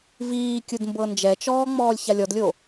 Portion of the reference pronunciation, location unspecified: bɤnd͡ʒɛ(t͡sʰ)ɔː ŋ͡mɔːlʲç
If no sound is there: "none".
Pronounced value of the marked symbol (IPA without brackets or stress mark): t͡ʃ